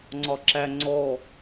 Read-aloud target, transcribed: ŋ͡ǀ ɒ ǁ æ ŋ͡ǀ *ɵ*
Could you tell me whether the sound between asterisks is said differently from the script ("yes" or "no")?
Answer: yes